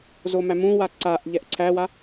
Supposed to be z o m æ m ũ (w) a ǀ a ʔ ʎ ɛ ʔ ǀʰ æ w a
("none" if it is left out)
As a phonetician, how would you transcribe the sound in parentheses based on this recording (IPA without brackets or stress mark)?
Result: w